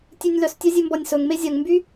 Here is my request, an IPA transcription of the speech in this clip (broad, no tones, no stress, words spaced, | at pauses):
tʲʉnʲlœs tʲœzʲʉmbɔnʲsɵŋ mezʲœŋmby